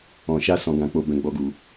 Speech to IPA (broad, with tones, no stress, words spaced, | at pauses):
ɔ̃˨ ʃa˧ sɔ̃˨ɡã˨k͡po˨ bɛ̃˨ɡ͡bɔ˨ɡu˨